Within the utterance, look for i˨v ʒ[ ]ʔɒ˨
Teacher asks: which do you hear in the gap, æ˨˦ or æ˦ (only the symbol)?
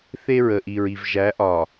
æ˨˦